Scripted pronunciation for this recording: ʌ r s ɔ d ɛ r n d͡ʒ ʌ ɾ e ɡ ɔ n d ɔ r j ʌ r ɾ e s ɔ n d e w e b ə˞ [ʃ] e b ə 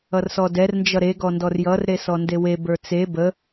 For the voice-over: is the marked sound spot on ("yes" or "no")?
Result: no